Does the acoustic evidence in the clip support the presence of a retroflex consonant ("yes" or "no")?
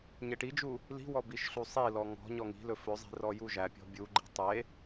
yes